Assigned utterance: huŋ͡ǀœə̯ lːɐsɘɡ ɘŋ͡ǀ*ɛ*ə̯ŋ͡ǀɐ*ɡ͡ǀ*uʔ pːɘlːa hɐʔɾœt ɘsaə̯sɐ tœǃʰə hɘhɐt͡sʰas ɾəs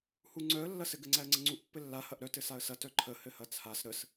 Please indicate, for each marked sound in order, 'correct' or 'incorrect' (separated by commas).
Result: incorrect, incorrect